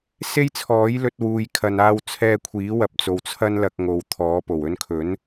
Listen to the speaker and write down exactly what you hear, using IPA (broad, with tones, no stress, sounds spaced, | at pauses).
s e˥ j t͡sʰ ɔː˨˥ j l ɵ˧ t̚ w uː˨ j kʰ ɐ˨ n aː˧ w t͡sʰ ɛː˧ kʷʰ iː˨˥ w ɐ˧ p̚ t͡s o˨ w t͡sʰ ɐ˥ n l ɐ˧ k̚ ŋ o˨ w t̪ʰ ɔː˨˥ p o˨˩ w ɵ˧ n kʰ ɵ˨˥ n